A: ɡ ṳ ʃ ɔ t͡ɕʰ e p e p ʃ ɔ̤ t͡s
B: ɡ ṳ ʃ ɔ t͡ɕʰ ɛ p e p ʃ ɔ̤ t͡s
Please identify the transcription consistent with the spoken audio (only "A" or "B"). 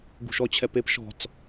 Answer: B